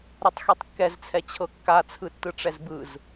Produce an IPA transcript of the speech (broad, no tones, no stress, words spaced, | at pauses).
ɾɛtˤxitˤkːɛzt͡sʰɛ t͡ɕʰɤkːat͡sʰɯtːɯ ʈ͡ʂɛzbɯz